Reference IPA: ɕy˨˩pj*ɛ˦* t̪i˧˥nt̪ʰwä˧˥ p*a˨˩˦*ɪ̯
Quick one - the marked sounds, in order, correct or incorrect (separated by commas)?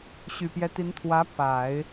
correct, correct